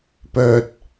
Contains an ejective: no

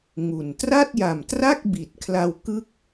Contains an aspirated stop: yes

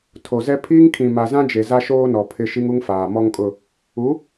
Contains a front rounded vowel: no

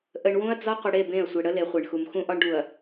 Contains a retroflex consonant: yes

